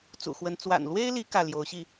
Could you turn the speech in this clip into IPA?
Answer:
t͡s ṵ˨˩ x w ə˧˥ n t͡s w a̰˨˩ n l w e˥ ɪ̯ l i˧˥ k ä˥˩ l j o˧˥ ʊ̯ ɕ i˥˩

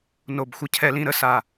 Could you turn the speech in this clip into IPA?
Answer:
n o˨ b xʷ ə˦ cʰ ɛ˦ l ĩ˦ ɾ ə˦ s a˨

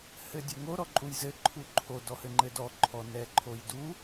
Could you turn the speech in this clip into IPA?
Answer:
h ɘ dʲ ɘ ŋ o ɾ ɔ ǃʼ u j z ɘ ǃʰ u ǃʰ o d ɔ h ɘ ŋ͡ǃ ɘ d ɔ ǃʰ ɔ n ɛ ǃʰ o j d u

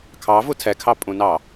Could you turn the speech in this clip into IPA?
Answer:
kʰ ɑ v u tʰ ɛ kʰ ɑ pʼ ũ n ɑ

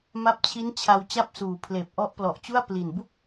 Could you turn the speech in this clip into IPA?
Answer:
m a˦˥ p̚ t͡ɕʰ i˦˥ n t͡ɕʰ a˧ w t͡ɕ a˥˩ p̚ s uː˨˩ pʰ l eː˨˩ p̚ ʔ ɔ˦˥ ʔ p l ɔ˨˩ ʔ t͡ɕ u˥˩ a̯ p l i˨˩ n b u˥˩ k̚

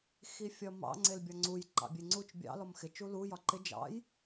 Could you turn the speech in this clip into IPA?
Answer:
x i fʲ ɒ m ɑ̰ ŋ͡ǀ e l bʲ ɒ ŋ͡ǀ u j ǃ ɑ̰ bʲ e ŋ͡ǀ u t͡ʃ bʲ ɑ̰ l ɔ m x ɪ t͡ʃ u l u j ɒ ǃ ɪ d͡ʒ ɑ̰ j

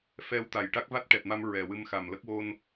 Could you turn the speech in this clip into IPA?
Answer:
f ɛ˧ w t̪ a˨˩ j ʈ a˦˥ k̚ v a˦˥ t̚ ʈ ɛ˨˩ t̚ m a˧ m ɹ ɛ˨˩ w ɨ˧ m x a˨˩ m l ə˦˥ k̚ w o˧ n

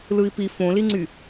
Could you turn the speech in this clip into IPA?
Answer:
l ɯ i̯ p i f õ l i ŋ͡ǀ y

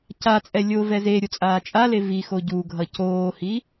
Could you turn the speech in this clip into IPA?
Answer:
c a t͡sʼ ɛ lʲ o v ɛ z e ɾʲ o t͡sʼ aː t͡ʃʼ a l e v i x o ɟ u ɡʱ ʌ c oː h i

